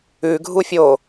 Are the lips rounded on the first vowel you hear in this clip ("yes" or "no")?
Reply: yes